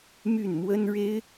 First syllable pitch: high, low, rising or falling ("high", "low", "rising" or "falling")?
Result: falling